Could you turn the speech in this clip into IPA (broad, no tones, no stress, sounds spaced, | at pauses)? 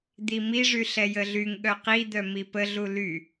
d̪ i m i ʐ y ɬ ɛ j ə ɮ y ŋ ɠ œ q i d̪ œ m i p ə ɮ u l y